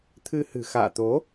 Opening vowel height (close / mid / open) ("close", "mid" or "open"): close